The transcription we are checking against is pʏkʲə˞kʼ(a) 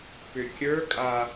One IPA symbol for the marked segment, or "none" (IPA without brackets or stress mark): a